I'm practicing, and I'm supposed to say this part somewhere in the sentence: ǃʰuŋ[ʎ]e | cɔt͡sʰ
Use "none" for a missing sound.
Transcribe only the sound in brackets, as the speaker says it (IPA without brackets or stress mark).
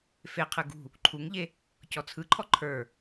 ʎ